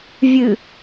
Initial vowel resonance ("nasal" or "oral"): oral